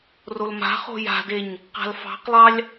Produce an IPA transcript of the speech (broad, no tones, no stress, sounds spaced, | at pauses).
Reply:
r o l m a̤ χ o̤ j a̤ d e ɲ | q a̤ l f ɑ̤ q lˠ ɑ lʲ